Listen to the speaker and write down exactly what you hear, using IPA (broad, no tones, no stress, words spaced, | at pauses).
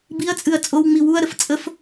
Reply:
biɐ̯t͡sʼɨɐ̯ t͡sʼowŋ͡mi wuɐ̯ɾəf t͡sʼəf